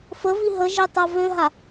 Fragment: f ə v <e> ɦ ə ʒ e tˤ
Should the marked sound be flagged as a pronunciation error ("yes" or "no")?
yes